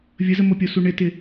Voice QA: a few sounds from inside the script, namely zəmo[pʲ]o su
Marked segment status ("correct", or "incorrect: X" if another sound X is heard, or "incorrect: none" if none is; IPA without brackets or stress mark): correct